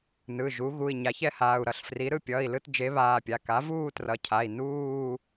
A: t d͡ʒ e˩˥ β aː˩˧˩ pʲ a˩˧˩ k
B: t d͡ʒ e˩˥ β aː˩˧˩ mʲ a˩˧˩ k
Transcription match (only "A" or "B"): A